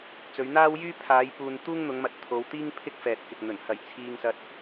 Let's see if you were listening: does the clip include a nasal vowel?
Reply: no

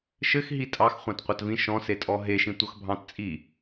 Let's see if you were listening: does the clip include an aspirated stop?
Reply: no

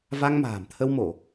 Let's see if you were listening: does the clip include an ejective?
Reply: no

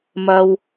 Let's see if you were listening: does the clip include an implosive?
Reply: no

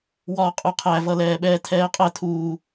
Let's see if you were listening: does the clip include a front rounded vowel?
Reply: no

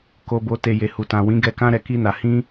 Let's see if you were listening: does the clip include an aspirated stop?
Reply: no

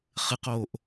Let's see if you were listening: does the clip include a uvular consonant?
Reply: yes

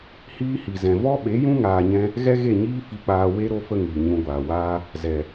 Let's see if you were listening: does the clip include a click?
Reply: no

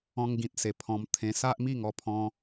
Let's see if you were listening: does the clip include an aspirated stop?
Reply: yes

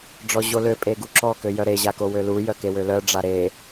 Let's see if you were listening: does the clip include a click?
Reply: yes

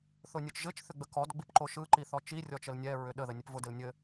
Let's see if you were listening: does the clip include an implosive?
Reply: yes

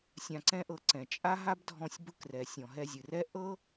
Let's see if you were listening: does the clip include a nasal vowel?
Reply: yes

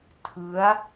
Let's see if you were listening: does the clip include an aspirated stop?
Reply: yes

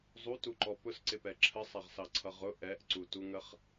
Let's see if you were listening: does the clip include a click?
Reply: yes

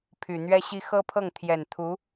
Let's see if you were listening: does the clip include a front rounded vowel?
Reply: yes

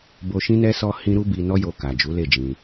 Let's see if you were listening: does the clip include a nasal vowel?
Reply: yes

